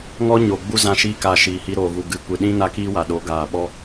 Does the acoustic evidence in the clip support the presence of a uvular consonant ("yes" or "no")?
no